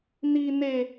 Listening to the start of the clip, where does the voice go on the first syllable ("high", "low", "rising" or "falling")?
high